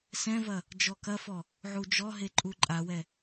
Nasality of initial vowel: nasal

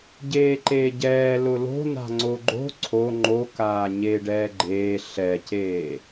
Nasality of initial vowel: oral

